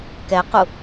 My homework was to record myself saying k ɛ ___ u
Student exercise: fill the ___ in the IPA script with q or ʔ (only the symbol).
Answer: q